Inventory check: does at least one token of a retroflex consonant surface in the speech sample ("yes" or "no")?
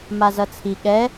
no